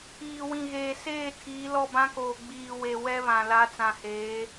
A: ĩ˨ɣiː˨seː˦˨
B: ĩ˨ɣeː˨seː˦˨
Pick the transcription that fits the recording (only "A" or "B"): B